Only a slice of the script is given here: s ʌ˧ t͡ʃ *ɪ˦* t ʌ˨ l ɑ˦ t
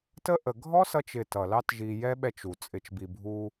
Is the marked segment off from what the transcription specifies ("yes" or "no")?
yes